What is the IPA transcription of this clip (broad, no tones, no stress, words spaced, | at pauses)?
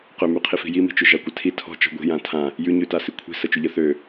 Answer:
qømyqʰi fi̤jimi̤t͡ʃʏ ʒakʷətʰi tʰɔ̤ t͡ʃɔ̤ɡʷi̤ jãtʰã | jʉɲʉ tasikʷʰi̤ sət͡ʃʏʎə θø